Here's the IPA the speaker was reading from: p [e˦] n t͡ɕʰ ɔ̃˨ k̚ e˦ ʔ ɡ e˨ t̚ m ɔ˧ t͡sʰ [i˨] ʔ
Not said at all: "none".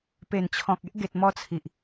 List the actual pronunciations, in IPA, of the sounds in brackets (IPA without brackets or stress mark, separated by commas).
e˨˩, i˨